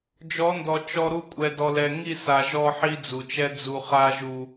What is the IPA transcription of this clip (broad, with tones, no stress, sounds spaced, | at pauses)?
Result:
d͡ʒ ɔ˨˦ n d ɔ˨ t͡ʃ ɔ˦ ɾ u˦ kʷʼ ɛ˨ d ɔ˨ l ɛ˨ ŋ i˦˨ s a˨ ʒ ɔ˦ ħ i˦ d͡z u˨ t͡ʃ ɛ˦ d͡z u˨ χ a˦ ʒ u˦